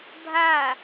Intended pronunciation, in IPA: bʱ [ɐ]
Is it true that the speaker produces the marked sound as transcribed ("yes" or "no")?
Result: no